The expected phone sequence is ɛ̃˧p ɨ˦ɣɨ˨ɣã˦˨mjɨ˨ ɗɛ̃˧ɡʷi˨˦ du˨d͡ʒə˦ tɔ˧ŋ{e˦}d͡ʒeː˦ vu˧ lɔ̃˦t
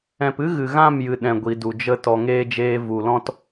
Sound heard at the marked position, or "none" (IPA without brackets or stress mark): eː˦